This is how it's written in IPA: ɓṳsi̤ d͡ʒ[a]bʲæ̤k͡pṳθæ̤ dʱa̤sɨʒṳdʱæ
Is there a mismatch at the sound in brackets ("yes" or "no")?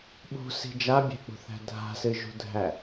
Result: no